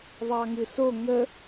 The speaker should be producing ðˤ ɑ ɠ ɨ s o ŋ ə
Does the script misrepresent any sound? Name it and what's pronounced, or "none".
ɠ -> ŋ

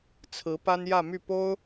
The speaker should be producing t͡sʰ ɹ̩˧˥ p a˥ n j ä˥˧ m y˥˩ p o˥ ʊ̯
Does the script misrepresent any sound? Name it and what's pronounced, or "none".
none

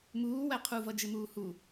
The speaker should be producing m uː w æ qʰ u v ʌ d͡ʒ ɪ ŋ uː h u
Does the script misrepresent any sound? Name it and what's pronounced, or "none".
ŋ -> m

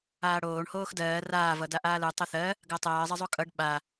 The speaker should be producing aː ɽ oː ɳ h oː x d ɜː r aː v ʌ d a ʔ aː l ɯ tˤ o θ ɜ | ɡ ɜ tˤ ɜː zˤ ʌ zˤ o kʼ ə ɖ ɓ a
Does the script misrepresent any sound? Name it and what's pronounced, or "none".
ə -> ʌ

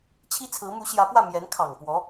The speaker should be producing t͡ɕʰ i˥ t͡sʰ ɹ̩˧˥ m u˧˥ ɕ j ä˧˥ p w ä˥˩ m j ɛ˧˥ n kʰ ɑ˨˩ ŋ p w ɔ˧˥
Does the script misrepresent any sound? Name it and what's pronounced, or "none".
none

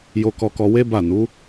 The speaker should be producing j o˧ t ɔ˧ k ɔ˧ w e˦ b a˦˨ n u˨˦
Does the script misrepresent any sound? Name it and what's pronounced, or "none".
t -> k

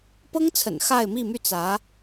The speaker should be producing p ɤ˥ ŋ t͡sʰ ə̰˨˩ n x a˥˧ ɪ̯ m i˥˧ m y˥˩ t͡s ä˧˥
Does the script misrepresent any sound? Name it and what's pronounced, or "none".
none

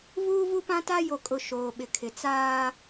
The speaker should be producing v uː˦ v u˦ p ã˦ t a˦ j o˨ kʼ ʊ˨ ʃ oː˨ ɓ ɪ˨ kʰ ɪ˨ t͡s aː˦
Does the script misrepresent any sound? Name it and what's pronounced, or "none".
none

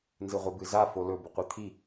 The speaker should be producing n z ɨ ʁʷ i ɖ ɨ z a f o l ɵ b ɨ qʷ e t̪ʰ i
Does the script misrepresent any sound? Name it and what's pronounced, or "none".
ɖ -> b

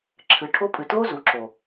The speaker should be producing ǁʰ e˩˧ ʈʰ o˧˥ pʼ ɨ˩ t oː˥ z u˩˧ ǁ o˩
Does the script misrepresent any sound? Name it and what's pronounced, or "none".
e˩˧ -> ɨ˩˧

